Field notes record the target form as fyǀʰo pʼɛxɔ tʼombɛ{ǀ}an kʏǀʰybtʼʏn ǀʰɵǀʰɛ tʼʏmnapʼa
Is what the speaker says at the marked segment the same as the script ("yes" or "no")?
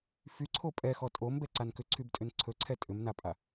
yes